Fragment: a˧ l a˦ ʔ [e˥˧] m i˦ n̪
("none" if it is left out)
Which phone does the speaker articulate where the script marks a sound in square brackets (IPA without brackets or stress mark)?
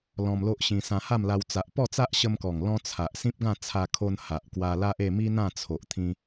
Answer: e˥˧